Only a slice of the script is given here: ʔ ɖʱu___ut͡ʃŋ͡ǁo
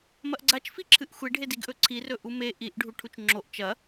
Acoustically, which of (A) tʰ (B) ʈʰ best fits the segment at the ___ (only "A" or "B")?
B